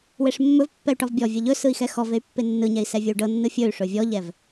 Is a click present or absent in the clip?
absent